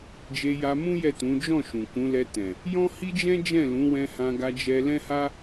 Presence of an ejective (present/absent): absent